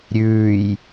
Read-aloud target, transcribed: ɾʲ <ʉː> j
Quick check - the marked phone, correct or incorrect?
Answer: correct